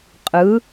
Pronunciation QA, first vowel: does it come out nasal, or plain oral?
oral